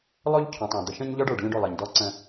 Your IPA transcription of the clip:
lˠ o˦ ʎ cʰ õ˨ tˤ ɔ̃˨ d̪ ə˨ ʃ ə̃˦ ɲ ʎ ɔ˦ ɖ ə˞˨ ɖ lʲ ɔ̃˦ ɖ o˦˨ lˠ ɜ˨ ɲ d ɔ˦ ǀ ə̃˦

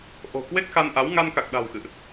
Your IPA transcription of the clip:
ʔ o̤˨˩ k w e˦˥ k̚ x a˧ n ʔ a˨˦ w ŋ a˧ n k a˨˩ k̚ ɗ a̤˨˩ w x ɨ̰˧˨ ʔ

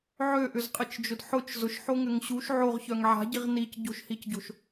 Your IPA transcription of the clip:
ʕ ø ʔ ʏ z qʼ ɪ t͡ʃ d͡ʒ ʊ d ħ ʊ t͡ʃ z ʊ ʃ ħ o ŋ ʏ ŋ ɕ u ʃ ʕ o ʁ ç œ ŋ ʕ a̤ ɟ i ʁ n i c ɟ o̤ ʃ h i c ɟ o̤ ʃ

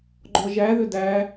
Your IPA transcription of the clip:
ɡ͡ǃ ɔ ʒ æ ð ʏ d æ

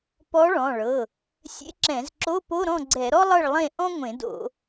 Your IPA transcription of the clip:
p ɔ˧˥ ɭ ɔ̃˩˧˩ ɭ ɤ˩˧˩ | sʲ ḛ˧˥ ǁ ɛ̃˧˩˧ z ǁ o˧˥˧ p o˧˥˧ ɾ ɔ̃˥˨ ɡ͡ǀ ɛ˧˩˧ ɾ ɔ˥ lˠ ɤ˥˨ ɭ lˠ ẽ˥˨ ʔ ɔ̃˥ ŋʷ ẽ˧˩˧ d o̰˧˩˧

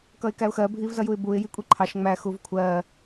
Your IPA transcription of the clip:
k ʌ ɪ̯ k æ ʊ̯ x ɜ bʱ i v z ʌ j u ɪ̯ b u ɪ̯ j i kʷʼ i ǃʰ ɑ ʃ ŋ͡m æ x u v kʷʰ ɜ

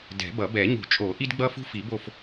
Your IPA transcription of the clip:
d ɛ̤˨˩˦ b ʌ˨˩˦ b ɛ˨˩˦ ɲ ṳ˨˩˦ t͡ʃʼ o˨˩˦ ʔ i˥ d ɡ͡b ʌ˥ f ṳ˥ f i˨˩˦ b o˦˨ f

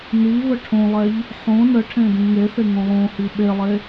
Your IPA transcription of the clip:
n i v ə ʈʰ õ lˠ ɛ ʎ | ħ õ n ə ʈʰ ẽ d ĩ ŋ e θ e ŋ õ lˠ õ h i ɓ e lˠ e

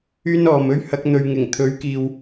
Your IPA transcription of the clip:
yː˥ n ɔː˨ m ɵ˥ ɥ h ɐ˨˥ k̚ n̪ ɵ˨ ɥ ŋ ɪ˨˩ ŋ t̪ʰ ɵ˨˥ ɥ k iː˨ w

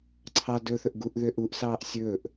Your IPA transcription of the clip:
ǀʰ ɑ d ɵ θ ɵ ʔ ɡ u ʔ ð ø ʔ u ʔ s ɑː ʔ sʲ ɵː ʔ

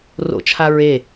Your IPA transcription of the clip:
r o̰ t͡ʃʰ a ɹ e

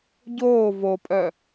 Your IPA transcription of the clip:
ɟ oː v o pʼ œ

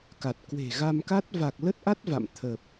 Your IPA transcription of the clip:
k a˨˩ t̚ k w e̤˨˩ ɣ a˧ m k a˦˥ t̚ v a˨˩ k̚ l ə˦˥ t̚ ʔ a˦˥ t̚ v a̰˧˨ m t̪ʰ ə˨˩ p̚

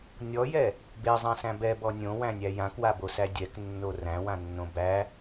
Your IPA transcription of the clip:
nʲ ɔ j ɛ | b e zˤ ã s æ̃ b ɛ b ɔ nʲ õ w æ̃ nʲ æ j ã k w a b o s æ dʲ ɛ k nː o r æ̃ w ã nː õ b æ

